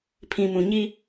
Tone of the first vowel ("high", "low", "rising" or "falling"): low